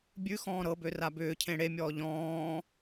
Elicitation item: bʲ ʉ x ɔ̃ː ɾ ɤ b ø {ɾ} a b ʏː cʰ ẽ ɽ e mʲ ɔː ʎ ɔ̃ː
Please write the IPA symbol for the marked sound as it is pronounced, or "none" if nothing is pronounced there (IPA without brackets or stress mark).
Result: r